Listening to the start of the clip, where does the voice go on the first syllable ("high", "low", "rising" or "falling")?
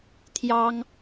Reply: high